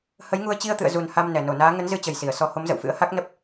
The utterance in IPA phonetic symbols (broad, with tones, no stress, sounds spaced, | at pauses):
h ə˨˦ j ŋ u˧ ə̯ t͡ɕ i˧ ə̯ t̪ ɨ̰˧˨ ə̯ z u˨˩ n h a˧ m n ɛ˧˩ n o˧˩ n aː˨˦ ŋ ə˨˦ n z ɨ˧ t͡ɕ ə˨˩ j s i˧˩ ə̯ s ɔ˧ h o˨˦ m z ə̰˧˨ w f ɨ̰˧˥ ə̯ h a˦˥ k̚ n ə˦˥ p̚